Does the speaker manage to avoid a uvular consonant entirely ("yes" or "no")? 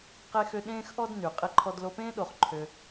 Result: no